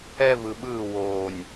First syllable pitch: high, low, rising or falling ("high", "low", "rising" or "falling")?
high